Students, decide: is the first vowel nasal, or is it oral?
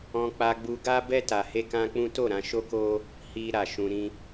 nasal